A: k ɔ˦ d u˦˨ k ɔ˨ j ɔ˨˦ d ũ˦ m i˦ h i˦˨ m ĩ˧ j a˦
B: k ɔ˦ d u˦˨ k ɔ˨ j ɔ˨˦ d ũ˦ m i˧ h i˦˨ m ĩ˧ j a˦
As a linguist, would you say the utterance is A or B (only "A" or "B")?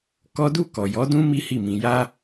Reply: A